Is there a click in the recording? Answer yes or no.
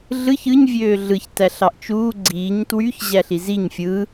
yes